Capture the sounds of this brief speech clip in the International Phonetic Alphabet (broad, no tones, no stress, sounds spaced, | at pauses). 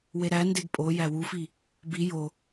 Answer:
w e ɾ æ n d e ɡ pʼ o j æ w u f i | b i j o